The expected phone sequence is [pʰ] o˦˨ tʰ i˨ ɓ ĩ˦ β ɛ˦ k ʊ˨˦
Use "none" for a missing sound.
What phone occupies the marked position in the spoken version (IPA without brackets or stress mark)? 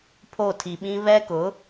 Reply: pʰ